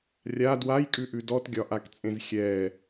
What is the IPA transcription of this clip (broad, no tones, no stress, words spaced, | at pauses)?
rʲa dwajkʼʉʔʉ dɔtɡʲɒʔakt͡sʼẽz xʲɛ